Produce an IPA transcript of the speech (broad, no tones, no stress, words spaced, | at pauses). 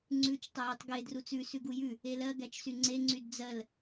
ŋ͡ǀʉt͡ʃ tˤəjytˤɡe drut͡sʉ sʉɡujʉ | elɜ ɡæt͡ʃsyŋ͡ǀe ŋ͡ǀydd͡zɜl